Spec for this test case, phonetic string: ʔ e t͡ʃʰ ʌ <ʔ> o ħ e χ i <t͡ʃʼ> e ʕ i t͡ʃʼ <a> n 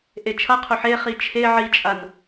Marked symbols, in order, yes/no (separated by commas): no, no, yes